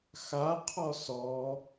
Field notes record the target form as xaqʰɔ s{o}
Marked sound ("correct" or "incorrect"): incorrect